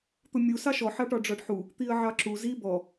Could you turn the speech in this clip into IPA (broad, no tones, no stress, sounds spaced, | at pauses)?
t̪ ʊ mʲ u s ɑ ʃ ɔ ħ ɑ ʈ ɒ ɖ͡ʐ ɒ ɖ ħ u | t̪ i ə̯ ʕ ɑ ǁ u z i b ɔ